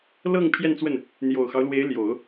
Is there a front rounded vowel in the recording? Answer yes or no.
no